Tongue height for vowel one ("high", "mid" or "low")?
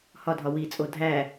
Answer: low